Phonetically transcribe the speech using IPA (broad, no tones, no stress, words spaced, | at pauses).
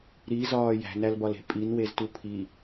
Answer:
ɾizɒː jæ̤nælbɒle̤ pʼinweztu pʰi